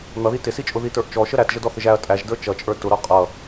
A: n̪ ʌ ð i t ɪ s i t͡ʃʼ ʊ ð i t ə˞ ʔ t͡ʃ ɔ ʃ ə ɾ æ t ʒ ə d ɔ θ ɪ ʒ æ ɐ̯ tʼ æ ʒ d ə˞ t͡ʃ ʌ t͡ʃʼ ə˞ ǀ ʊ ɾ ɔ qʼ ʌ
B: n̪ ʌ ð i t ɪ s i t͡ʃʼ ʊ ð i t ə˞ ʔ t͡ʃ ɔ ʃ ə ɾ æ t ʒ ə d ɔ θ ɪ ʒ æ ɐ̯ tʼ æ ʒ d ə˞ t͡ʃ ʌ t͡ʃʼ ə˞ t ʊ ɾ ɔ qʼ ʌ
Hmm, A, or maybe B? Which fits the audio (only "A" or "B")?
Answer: B